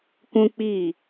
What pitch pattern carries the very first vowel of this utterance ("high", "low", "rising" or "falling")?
high